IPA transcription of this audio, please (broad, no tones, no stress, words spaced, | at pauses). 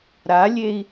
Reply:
ɾalʲei̯